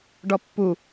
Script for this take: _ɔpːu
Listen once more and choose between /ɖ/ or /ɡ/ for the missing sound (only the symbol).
ɖ